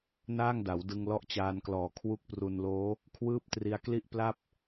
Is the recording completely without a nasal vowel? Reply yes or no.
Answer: yes